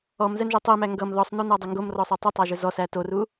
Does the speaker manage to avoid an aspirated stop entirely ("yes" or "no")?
yes